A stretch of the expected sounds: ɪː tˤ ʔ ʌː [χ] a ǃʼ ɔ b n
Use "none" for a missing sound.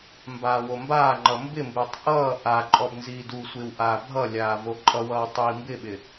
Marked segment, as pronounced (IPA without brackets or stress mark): ʔ